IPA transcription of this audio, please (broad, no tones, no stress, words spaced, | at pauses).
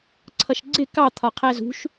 ǀʰʌʃɡ͡ǀɪ kɑ t̪ʰɒqʰæzṳʃ